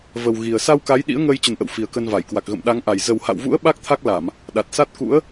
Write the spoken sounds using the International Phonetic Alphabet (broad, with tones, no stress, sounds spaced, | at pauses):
v ə˨˩ w ɣ i˨˩ ə̯ s a˧ w k a˨˦ j ɗ ḭ˧˥ ə̯ ŋ əː˧ j t͡ɕ ə˨˩ n ʔ ə̰˧˨ w f i˨˩ ə̯ k ə˧ n v a˧˩ j k w a˨˩ k̚ ɣ ə̰˧˨ m ɗ a˨˦ ŋ ʔ a˨˩ j z ə˨˩ w h a̰˧˨ w v ṵ˧˥ ə̯ ɓ a˦˥ k̚ t̪ʰ a˦˥ k̚ l a˧˩˨ m | ɗ a˨˩ t̚ s a˦˥ t̚ k ṵ˧˥ ə̯